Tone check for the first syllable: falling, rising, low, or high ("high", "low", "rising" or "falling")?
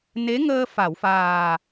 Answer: rising